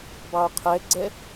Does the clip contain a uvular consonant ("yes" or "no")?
yes